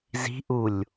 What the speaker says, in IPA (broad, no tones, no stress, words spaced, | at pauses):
zi̤ʔulʲ